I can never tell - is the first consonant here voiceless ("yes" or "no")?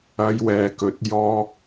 no